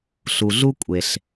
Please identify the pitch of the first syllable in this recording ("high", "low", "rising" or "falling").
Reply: low